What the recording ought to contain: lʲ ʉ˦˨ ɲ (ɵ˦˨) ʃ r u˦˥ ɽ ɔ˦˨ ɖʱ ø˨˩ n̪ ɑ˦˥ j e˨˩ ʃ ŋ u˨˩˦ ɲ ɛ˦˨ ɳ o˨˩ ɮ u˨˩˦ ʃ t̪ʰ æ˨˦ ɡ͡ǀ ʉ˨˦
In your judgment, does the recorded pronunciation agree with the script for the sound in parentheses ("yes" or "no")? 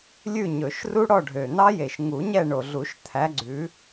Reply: no